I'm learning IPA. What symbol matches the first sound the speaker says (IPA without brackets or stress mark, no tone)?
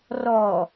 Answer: r